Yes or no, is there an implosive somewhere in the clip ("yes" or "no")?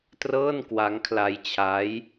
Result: no